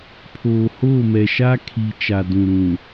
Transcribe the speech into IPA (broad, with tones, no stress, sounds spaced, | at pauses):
pʰ oː˨ h oː˦˨ m ɛ˨ ʃ a˦ kʰ i˨ t͡ʃ a˨ d ũ˨ ɾ ũ˨